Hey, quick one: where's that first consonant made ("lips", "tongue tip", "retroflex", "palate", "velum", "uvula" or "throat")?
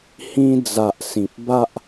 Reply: throat